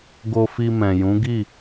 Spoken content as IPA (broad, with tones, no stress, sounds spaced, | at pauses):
ɡ o˧ f i˧ m ɛ̃˨ j ũ˨˦ ɡ i˦˨